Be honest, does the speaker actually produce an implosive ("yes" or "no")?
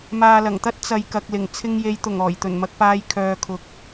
no